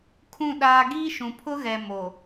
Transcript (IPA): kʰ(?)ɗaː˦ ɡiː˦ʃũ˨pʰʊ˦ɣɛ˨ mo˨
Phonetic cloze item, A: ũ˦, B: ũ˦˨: B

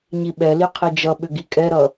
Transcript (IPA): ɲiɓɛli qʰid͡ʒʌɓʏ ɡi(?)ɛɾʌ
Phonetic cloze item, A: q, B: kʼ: B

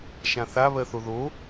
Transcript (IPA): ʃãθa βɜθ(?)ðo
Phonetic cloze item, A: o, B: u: A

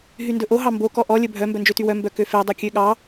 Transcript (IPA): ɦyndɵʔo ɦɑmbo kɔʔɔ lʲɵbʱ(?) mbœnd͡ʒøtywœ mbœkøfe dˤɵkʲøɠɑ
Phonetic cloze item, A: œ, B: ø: A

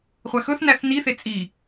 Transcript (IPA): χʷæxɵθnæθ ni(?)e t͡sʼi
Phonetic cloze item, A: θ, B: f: A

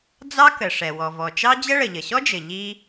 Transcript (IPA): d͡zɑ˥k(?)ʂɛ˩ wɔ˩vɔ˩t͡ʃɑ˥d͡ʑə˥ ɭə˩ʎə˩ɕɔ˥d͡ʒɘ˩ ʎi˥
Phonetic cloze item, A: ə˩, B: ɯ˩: A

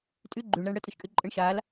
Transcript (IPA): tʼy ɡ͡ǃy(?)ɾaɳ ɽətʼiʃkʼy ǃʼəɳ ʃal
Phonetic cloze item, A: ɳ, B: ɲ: A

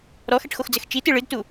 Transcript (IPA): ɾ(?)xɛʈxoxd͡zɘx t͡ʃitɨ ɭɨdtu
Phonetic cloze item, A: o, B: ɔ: B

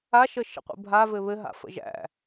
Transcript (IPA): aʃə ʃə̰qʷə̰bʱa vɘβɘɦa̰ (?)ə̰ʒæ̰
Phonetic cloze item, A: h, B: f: B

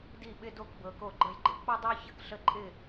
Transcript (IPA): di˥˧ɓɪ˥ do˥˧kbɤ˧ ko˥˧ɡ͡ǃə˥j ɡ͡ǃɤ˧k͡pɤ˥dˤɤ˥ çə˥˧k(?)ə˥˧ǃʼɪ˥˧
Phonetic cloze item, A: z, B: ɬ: B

